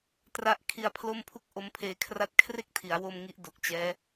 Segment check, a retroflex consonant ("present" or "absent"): absent